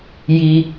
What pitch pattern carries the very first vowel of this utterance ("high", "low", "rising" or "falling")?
high